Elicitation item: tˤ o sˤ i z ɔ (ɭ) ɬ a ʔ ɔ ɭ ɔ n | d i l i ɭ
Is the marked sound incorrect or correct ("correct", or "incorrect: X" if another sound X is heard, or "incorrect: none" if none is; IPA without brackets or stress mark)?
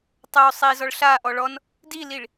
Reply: correct